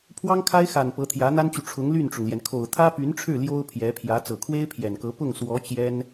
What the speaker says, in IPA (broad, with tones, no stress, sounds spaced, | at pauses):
pʰ w ɑ˥ ŋ kʰ a˥ ɪ̯ x a˨˩ n p ɤ˧˥ t̪ʰ j ä˧˥ n̪ a˥ n t͡ɕ y˨ ʈ͡ʂʰ ʊ˧˥ ŋ l y˥˩ n ʈ͡ʂ ʊ˩ ŋ l j ɛ˩ n kʰ o˨˩ ʊ̯ t̪ʰ ä˥ p y˧˥ n ʈ͡ʂʰ ɻ̩˥˩ l j o˥ ʊ̯ pʰ j ɛ˧˥ pʰ j ä˧˥ t͡s ɤ˨˩ kʰ w e˥ ɪ̯ pʰ j ɛ˨˩ n k ɤ˧˥ p ʊ˥˩ ŋ s w ɔ˧˥ t͡ɕ j ɛ˥ n